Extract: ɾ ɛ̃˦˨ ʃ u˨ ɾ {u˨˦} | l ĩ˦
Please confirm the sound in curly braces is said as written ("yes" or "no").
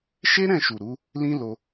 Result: yes